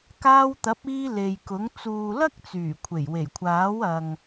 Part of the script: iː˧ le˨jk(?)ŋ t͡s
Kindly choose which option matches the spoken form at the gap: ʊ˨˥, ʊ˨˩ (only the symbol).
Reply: ʊ˨˥